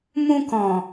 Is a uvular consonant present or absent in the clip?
absent